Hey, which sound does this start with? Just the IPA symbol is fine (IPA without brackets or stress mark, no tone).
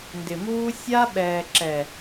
n